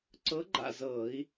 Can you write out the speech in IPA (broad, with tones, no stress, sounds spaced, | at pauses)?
ǀ ɤ˧˥ ɡ͡ǃ a̰˥˨ z ɤː˧˩˧ i̯